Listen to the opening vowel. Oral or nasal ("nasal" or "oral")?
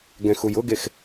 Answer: nasal